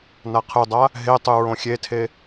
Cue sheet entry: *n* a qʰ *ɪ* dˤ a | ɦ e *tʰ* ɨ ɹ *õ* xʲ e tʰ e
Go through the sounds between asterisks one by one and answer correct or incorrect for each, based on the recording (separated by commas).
correct, incorrect, incorrect, correct